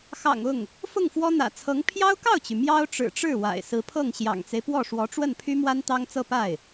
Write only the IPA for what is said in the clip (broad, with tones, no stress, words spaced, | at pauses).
xɑ̰˨˩ŋ ʊ˥˩ŋ | fʊ˥˩ŋfwɔ˥ n̪ä̰˨˩t͡sʰɤ˧˥ŋ pʰjɑ˥ʊ̯kɑ˥˩ʊ̯t͡ɕy˩ mjɑ˥ʊ̯ʈ͡ʂɻ̩˨˩ʈ͡ʂɻ̩˥˩ wa̰˨˩ɪ̯ sɹ̩˧˥pʰɤ˥˩ŋ ɕjɑ̰˨˩ŋt͡se˦ɪ̯pwɔ˥˩ʂwɔ˧˥ ʈ͡ʂwə˥˩npʰy˥mwa˥n t̪ɑ˥ŋt͡sɤ˥˧ pa˥˩ɪ̯